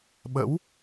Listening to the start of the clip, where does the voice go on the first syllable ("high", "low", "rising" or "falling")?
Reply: rising